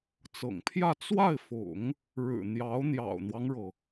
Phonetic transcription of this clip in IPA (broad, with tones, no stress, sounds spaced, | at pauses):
t͡s ɤ̰˨˩ ŋ pʰ j ä˥˧ t͡s w a˥˩ ɪ̯ f ʊ̰˨˩˦ ŋ | ɻ ɻ̩˨˩ n̪ j ɑ˧˥ ʊ̯ n̪ j ɑ̰˨˩ ʊ̯ n̪ w ɑ˦ ŋ ɻ ɤ˩